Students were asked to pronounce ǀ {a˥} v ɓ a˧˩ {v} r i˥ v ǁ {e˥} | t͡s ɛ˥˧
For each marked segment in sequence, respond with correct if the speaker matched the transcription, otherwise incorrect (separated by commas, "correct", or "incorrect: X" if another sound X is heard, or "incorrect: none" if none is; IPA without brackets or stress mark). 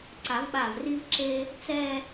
incorrect: a˨˩˦, correct, correct